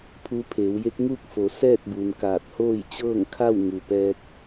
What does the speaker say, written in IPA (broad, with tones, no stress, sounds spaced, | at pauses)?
pʰ uː˧ pʰ eː˩˧ w j e˧˥ k̚ ŋ uː˥˨ k̚ f o˩˧ s ɛː˥˨ t̚ b u˩ n k aː˧˩ t̚ h oː˥˨ j t͡ɕ ɤː˥˨ ŋ kʰ a˥˨ w ŋ u˩ p ɛː˧ k̚